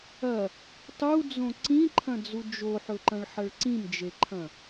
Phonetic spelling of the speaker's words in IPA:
ɐ | tˤ u d͡z õ ǀ ĩ ǃʰ ɐ̃ d͡z u d͡ʒ o ħ ɵ ǃ ɐ̃ ɭ ħ ɐ ɭ ǀ ĩ m d͡ʒ e ǃʰ ɐ̃

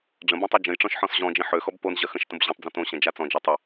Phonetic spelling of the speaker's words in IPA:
ɖ͡ʐ ə̃ b õ tˤ ø d͡ʒ ə̃ j ʈ͡ʂ ɔ̃ ʃ ħ ɔ̃ s ʑ ɔ̃ d͡ʒ ĩ ħ ø x ɔ b p o n ʑ ɐ x ə̃ ʃ t ə̃ b ʑ õ tˤ d͡z ɐ̃ t õ ɕ ɐ̃ d͡ʒ a t͡s ɔ̃ d͡ʒ ɐ tˤ ə

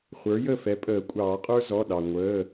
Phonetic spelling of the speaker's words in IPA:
χʷ ə˞˩˥ j ə˥˩ f ɛ˩˥ pʼ əː˨˩˦ kʷʼ ɑː˨˩˦ qʼ ə˞˥ z ɔ˩˧˩ ɗ ɑ˩ ŋʷ əː˩˧˩

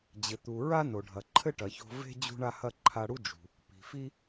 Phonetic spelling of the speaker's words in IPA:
d͡ʑ ɘ˩ t̪ u˩ ɹ a˥ n o˩ ɖʱ ɐ˩ ǃʰ ɘ˥ ʈ ɐ˩ ç o̤˧ v e̤˥ d͡ʑ ṳ˥ ɳ a˥ h ɐ˥ ǃʰ a˧ ɽ u˥ d͡ʒ ṳ˩ | p i̤˩ f i˥

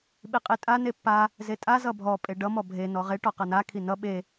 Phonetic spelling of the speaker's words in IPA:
ɓ i qʼ i tʼ a n e pː a | z e tʼ a z ʌ bʱ ɔ pʼ e ɖ ʌ m ɔ bʱ e n ɔ ʁ e ʈ ɔ q ʌ n a kʰ i n ʌ ɓ e

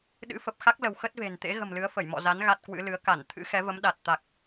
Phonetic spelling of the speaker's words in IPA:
ɗ ɨ̰˧˥ f ə˨˩ p̚ x a˦˥ k̚ l ə˧ w x ə˦˥ t̚ v e̤˨˩ n t̪ ḛ˧˥ ɣ ə̤˨˩ m l ɨ˨˦ ə̯ f ə˧˩ j m ɔ̰˧˨ z a˨˦ n ɣ a˦˥ t̚ k w ɨ̰˧˥ l ɨ˨˦ ə̯ k a˧˩ n t̪ʰ ɨ̰˧˥ x ɛ˨˦ v ə˨˦ m ɗ a˨˩ t̚ t̪ a˨˩ k̚

